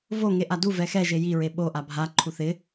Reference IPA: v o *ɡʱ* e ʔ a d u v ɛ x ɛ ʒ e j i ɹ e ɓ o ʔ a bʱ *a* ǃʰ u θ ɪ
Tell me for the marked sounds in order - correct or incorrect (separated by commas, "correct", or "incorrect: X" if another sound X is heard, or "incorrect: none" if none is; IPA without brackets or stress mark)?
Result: incorrect: ŋ, correct